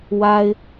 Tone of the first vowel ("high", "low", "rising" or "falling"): high